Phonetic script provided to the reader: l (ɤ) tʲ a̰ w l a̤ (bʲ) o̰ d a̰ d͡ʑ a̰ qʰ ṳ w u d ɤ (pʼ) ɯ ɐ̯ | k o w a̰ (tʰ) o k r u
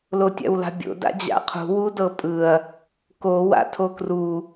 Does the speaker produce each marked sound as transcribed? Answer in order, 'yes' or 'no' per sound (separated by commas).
no, yes, yes, yes